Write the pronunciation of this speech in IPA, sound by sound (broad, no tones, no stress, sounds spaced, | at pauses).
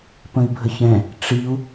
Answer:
p ə̃ i̯ bʱ ə ç ɛ̃ | ʈ͡ʂ i u̯